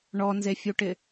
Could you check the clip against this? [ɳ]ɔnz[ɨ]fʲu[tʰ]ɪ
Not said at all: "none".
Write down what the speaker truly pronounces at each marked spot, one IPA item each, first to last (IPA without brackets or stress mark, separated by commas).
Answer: ɳ, e, ʈ